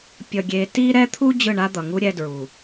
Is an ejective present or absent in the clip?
absent